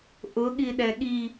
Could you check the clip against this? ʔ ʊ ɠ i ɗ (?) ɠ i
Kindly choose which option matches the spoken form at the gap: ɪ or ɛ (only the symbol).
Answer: ɛ